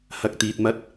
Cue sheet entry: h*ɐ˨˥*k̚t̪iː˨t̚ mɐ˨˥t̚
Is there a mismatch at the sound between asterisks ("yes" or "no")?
yes